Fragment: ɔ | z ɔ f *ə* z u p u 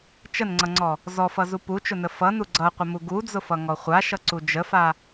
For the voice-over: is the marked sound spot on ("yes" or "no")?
no